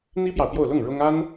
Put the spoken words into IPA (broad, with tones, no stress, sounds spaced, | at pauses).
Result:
n̪ i˥ p j ɑ˨ ʊ̯ p j o˥˧ ʊ̯ l ʊ˥˩ ŋ ɻ ʊ˥ ŋ a˥ n